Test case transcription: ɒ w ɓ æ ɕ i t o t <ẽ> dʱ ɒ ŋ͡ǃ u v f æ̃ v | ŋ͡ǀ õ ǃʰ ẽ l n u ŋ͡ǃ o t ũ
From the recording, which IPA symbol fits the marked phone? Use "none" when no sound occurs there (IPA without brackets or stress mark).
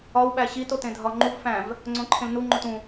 ẽ